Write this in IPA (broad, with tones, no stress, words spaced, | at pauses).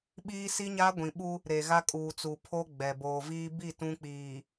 ɓiː˦si˦ɲa˦ɡʷĩ˨ ɓu˦ | ɾe˨ɣa˦kʼuː˨t͡su˨ pʰo˦ ɡ͡bɛ˨ boː˨viː˦ bi˦˨ tũ˦k͡piː˨